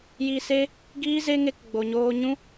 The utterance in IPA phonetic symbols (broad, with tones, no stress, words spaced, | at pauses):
ji˧se˦ | ɡiː˦ze˦ŋe˧k ɡ͡bo˨ɲoː˧ɲũ˦